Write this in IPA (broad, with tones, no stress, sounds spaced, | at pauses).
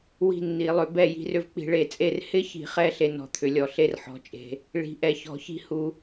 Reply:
w i̤˥˩ n n̪ i˧˩˧ lˠ ʏ˧˩˧ b ɛ˥˩ j i̤˧ r ʏ˧ v k͡p i̤˧˩˧ ɭ e˧˩˧ t͡sʼ e˥˩ r h ɪ˥˧ ç i̤˧˩˧ χ ɛ˧ ɬ e˧ n ɔ̤˧˩˧ t̪ʰ ʏ˩˧ lʲ ɔ˧˩˧ ɬ e˧ r ħ ɔ̤˩˧ t͡ʃʼ e̤˩˧ | ɭ i̤˩˧ ʔ ɛ˩˧ ç ɔ̤˧˩˧ ç i̤˥˧ h u˧